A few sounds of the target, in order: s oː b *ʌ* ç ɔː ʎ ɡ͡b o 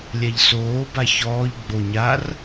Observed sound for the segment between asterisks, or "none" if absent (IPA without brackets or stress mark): a